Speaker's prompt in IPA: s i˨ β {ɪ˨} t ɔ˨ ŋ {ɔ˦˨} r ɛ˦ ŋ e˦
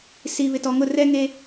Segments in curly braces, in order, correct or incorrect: correct, incorrect: ʊ˦˨

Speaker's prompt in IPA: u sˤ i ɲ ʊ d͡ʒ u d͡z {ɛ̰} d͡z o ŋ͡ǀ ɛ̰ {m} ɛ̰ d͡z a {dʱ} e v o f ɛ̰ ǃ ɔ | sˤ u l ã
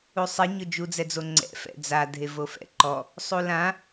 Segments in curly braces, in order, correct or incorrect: incorrect: ɛ, incorrect: f, correct

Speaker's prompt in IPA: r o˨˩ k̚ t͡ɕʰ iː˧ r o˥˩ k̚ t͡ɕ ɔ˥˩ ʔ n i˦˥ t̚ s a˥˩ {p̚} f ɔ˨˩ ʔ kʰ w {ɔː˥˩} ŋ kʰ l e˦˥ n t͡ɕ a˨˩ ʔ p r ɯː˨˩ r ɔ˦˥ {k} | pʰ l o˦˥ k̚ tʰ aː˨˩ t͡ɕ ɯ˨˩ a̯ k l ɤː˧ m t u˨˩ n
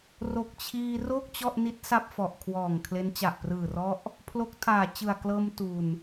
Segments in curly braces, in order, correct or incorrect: correct, incorrect: ɔː˨˩, incorrect: ʔ

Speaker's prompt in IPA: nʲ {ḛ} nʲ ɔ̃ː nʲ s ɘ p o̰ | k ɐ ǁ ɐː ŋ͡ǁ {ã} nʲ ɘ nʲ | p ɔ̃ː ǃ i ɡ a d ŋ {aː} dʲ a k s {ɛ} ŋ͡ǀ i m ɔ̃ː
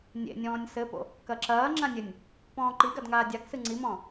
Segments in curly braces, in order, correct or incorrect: correct, correct, correct, incorrect: ɨ

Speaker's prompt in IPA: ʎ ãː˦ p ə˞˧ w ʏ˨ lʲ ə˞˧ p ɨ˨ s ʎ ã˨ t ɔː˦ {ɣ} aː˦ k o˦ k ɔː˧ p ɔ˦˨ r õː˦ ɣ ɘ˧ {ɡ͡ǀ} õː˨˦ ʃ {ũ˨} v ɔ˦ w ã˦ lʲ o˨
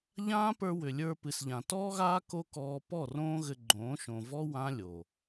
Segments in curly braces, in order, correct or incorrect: correct, incorrect: ɡ͡ǃ, incorrect: õ˨

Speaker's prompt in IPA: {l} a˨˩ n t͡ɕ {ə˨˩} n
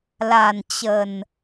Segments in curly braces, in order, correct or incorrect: correct, correct

